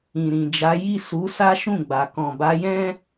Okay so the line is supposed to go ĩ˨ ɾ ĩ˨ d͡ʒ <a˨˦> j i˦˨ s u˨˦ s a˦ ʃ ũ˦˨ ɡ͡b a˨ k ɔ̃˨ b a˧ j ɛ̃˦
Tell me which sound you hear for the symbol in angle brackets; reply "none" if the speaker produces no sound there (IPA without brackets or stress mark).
a˨˦